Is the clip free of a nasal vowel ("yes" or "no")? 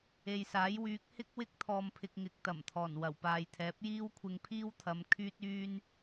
yes